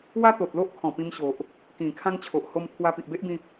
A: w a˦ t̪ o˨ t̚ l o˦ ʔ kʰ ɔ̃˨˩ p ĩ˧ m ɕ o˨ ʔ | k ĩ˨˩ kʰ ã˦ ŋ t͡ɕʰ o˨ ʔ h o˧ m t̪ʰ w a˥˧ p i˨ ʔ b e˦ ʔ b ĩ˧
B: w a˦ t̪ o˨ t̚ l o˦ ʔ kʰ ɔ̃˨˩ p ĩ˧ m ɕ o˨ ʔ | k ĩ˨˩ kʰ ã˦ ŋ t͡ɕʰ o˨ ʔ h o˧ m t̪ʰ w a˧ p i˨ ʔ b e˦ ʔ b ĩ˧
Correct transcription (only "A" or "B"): B